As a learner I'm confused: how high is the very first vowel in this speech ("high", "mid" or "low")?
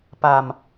low